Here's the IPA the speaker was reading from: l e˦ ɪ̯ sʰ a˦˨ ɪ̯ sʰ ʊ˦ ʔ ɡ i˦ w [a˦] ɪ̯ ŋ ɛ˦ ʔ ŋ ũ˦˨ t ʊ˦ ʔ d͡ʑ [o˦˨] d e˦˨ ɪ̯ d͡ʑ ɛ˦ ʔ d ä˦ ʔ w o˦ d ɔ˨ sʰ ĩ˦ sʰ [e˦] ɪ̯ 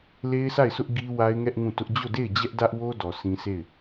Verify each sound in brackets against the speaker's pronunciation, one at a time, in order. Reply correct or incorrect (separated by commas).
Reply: correct, correct, incorrect